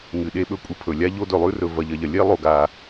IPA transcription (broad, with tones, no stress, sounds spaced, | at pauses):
ŋ ɨ˨ ɗ e˧ ɓ ɵ˧ kʷʼ ɨ˧ pʰ ɵ˨ lʲ a˧ ʎ o˧ d ɵ˨ lˠ ʉ˧ r ɵ˨ v ɐ˨ ʎ ɐ˨ ʎ ɐ˨ lʲ e˦ lˠ o˧ ɡ a˧